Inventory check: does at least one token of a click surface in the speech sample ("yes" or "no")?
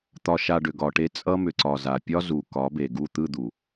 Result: yes